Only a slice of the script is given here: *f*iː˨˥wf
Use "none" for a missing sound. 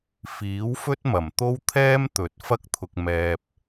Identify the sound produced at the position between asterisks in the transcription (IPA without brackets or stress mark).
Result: f